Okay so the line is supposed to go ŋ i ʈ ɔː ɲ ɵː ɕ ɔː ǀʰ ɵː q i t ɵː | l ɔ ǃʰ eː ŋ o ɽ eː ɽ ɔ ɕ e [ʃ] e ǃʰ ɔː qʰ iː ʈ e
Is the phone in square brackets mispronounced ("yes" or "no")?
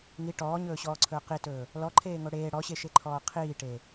no